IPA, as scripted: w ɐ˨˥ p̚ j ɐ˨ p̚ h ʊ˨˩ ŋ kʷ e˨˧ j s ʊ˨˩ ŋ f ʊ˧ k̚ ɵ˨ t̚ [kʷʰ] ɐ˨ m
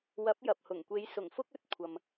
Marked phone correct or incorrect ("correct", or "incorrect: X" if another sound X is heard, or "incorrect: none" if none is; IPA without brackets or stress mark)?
correct